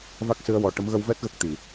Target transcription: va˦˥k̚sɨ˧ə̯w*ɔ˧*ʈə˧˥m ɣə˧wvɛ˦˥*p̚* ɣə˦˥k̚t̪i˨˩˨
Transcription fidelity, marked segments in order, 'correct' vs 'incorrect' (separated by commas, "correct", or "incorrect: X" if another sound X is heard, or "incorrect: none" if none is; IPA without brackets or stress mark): incorrect: ɔ˨˩, incorrect: t̚